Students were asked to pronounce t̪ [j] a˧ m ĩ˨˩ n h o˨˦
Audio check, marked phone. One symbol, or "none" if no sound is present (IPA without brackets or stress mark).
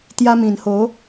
j